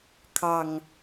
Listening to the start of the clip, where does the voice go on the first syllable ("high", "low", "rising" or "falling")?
low